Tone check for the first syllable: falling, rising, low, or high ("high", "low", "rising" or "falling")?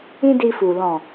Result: high